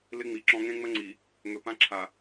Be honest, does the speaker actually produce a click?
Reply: yes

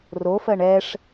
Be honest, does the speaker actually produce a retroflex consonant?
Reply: yes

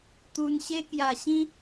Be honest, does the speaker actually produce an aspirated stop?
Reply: no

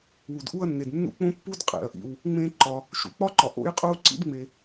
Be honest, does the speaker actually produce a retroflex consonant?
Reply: no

